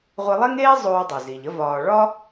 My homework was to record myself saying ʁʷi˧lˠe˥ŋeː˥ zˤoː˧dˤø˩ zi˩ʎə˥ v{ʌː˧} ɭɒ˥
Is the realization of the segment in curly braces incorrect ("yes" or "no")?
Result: yes